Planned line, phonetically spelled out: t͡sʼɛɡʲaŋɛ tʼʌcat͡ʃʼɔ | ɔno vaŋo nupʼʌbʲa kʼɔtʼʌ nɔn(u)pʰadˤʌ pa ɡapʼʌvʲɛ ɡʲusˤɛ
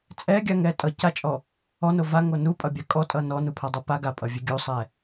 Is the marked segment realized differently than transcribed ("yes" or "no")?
no